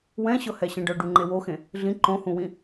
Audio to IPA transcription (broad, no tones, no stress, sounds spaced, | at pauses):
w ɛ̃ ɕ ɤ h ɛ ɕ ɛ̃ ɖ ɤ ɖ u ŋ͡ǃ e w o x ẽ | ɮ ĩ ǃ õ h ũ w ĩ